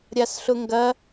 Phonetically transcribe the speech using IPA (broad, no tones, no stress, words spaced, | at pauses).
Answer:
ɾʲasɬʊŋɡɐ